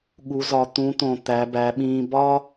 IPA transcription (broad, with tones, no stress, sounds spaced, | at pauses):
ɠ u˩˧ z ɒ˩˧ t̪ ũ˩˧ t̪ õ˩ t̪ æ˩˧ b æ˩˧ ɓ ĩː˧ b ɒ˥